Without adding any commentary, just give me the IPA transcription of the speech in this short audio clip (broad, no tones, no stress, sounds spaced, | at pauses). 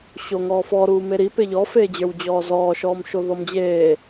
ɕ o ŋ ɔː f ɔ ɾ uː m e ɾ i p e ʎ ɔ f eː d͡ʑ ə˞ w d͡ʑ ɔː z ɔː ʃ ɔː m ʃ o ð ɔ m d͡ʑ eː